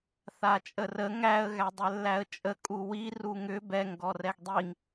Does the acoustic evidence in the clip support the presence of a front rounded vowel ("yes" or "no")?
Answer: yes